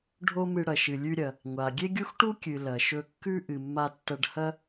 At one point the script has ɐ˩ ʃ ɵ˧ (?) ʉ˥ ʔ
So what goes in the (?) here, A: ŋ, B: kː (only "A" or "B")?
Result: B